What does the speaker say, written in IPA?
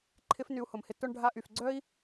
ǃʰ ɪ˦ f n y˧ u̯ h ʊ˨ m h ɪ˧ t ʊ˧ ɳ ɖʱ a˧ ʔ y˨ f ɡ͡ǀ œ˦ i̯

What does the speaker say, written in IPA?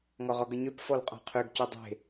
ŋ ɔ ʁ ɔ ɡ ə ɲ ø p f ɔ l qʼ ɔ̤ qʰ ø ɡ c ø dˤ e̤

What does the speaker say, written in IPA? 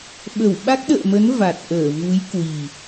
ɓ ə˧˩ w ɓ a˦˥ k̚ ɗ ə̰ː˧˨ m ə˨˦ n v a˨˩ t̚ ʔ əː˧˩ v u˨˦ j k w i˨˩

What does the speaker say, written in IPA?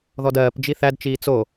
ð ɔ d ɜː p d͡ʒ i θ æ d t͡ʃ iː t͡s o

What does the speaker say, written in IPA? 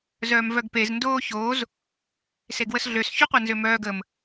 z œː m v œ ɡ p e z n d oː ç oː z | s e ɡ w ə s ɮ ø s ç u qʷ ɛ n z ø m œː ɡ ə m

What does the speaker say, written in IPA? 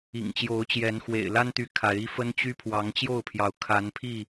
ḭ˨˩ ŋ t͡ɕ j o˨˦ ʊ̯ t͡ɕ j ɛ˨˦ n x w ḛ˨˩ ɪ̯ l a˦ n t̪ y˨ kʰ a˨˦ ɪ̯ i˦ f ə˦ n t͡ɕ y˦ pʰ w ɑ˨˦ ŋ t͡ɕ j o˥˨ ʊ̯ pʰ j ɑ˨˦ ʊ̯ kʰ a˨˦ n pʰ i˥˨

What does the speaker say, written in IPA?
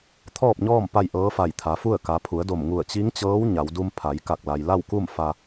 t̪ʰ ɔː˥˨ p̚ ɲ ɔː˥˨ m p a˥˨ j ʔ ɤː˧˥ f a˧˩ j t̪ʰ a˩˧ f u˥˨ ə̯ k a˩˧ pʰ u˩˧ ə̯ d o˧˩ m ŋ u˧˩ ə̯ t͡ɕ i˧˥ ŋ t͡ɕ ɤː˧˥ w ɲ a˩˧ w d u˧ m pʰ a˩˧ j k a˧˩ k̚ l a˩ j l a˥˨ w k u˥˨ m f a˧

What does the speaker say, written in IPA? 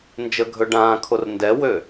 n d͡ʒ ə ɡʱ ɵ ɖ ãː kʰ o r n d ɛ w ø

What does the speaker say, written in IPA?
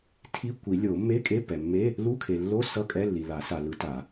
tʰ i˧˥˧ kʷ i˨˩˦ lʲ o˨˩˦ mː e˧˥˧ kʼ e˧˥˧ pː ɛ˨ mː e˧˥˧ | l u˧˥˧ kʰ e˨ lː o˧˥˧ s ʌ˧˥˧ kʼ ɛ˧˥˧ lː i˨ l a˨˩˦ s a˨ l ɯ˨˩˦ t a˨˩˦

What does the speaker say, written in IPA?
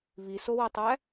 β i s o w o tˤ æ

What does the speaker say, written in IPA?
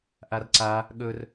ʔ a r ǀ a | ɠ ɵ r

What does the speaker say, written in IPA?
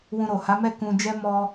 w ũ˧ ɾ o˨ h a˨˦ m ɛ˦˨ k ũ˧ d͡ʒ ɛ˦ m ɔ˧

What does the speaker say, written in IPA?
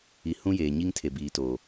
i˨ h ũ˦ j eː˨ ɲ i˦ ŋ tʰ e˨ b iː˨ t o˨

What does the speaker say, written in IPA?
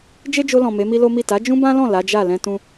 d͡ʒ e˦ d͡ʒ o˧ l ɔ̃˨ m e˨˦ m i˦ l o˦ m i˦˨ t a˨˦ d͡ʒ ũ˦ b ã˦ l ɔ̃˦˨ l a˨˦ d͡ʒ a˦˨ l ɛ̃˧ t ũ˧

